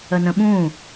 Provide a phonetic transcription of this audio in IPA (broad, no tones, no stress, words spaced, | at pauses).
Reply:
ənə̃ɓũ